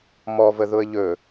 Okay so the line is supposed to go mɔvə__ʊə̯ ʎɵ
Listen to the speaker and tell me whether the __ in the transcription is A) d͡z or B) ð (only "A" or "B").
B